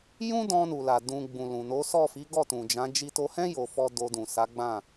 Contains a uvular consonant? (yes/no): no